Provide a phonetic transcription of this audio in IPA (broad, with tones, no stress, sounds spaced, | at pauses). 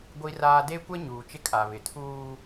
ɡʷ i˦ r aː˦ d e˦ kʷ ɛ˦ ɲ uː˨ t͡ʃ ɪ˦ kʼ a˨ β ɪ˨ tʰ uː˦